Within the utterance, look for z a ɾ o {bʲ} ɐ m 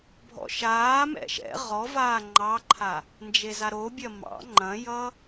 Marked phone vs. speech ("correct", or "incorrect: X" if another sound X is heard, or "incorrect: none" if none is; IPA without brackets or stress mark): correct